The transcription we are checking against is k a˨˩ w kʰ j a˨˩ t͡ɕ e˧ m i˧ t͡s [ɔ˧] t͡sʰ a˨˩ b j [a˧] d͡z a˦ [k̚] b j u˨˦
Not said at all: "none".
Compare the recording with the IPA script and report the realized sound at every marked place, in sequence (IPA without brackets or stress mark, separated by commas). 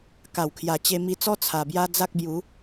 ɔ˦, a˦, k̚